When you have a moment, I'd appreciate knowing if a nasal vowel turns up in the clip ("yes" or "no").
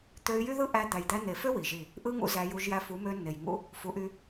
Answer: no